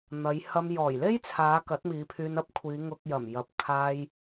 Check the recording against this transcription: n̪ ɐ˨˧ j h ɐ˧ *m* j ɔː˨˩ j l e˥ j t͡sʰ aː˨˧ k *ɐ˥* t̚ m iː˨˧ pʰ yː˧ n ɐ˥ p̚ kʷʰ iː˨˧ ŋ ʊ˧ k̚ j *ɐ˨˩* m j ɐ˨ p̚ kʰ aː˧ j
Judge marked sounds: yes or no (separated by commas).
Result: yes, no, yes